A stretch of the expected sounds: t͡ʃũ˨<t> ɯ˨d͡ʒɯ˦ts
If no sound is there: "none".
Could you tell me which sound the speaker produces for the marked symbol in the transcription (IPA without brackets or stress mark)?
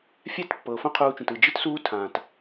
t